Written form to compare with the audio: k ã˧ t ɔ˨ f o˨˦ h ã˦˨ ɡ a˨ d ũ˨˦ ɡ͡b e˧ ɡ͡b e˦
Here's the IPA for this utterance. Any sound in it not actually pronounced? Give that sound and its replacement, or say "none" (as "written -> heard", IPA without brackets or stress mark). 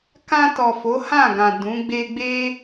a˨ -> ã˨